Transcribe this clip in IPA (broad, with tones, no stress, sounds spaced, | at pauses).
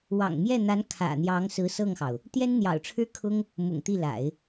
w ɑ̰˨˩ ŋ m j ɛ˥˩ n̪ a˧˥ n kʰ ä̰˨˩ n̪ j ɑ˧˥ ŋ s ɹ̩˧˥ s ɤ˥˩ ŋ x ɑ˩ ʊ̯ | t̪ j ɛ˥ n n̪ j ɑ̰˨˩ ʊ̯ ʈ͡ʂʰ ɻ̩˥ kʰ ʊ˥ ŋ | m ʊ̰˨˩ ŋ t̪ i˥˩ l a̰˨˩˦ ɪ̯